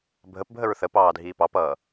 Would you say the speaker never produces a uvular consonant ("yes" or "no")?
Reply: yes